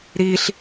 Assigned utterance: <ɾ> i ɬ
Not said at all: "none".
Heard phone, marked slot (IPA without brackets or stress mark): ɾ